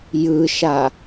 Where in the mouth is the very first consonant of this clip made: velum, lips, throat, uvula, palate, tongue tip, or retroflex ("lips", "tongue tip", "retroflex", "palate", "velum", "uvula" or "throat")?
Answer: palate